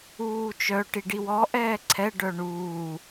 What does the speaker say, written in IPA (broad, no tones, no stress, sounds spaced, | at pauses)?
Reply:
uː t͡ʃ œ ʈ i ɖ i w ɔ ʔ ɛː ǀʰ ɛ ɖ œ ɳ uː